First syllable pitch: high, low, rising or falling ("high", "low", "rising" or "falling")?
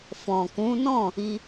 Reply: low